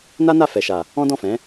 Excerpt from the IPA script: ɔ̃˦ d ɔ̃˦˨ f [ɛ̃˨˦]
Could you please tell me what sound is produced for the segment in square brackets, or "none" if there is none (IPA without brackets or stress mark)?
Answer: ɛ̃˨˦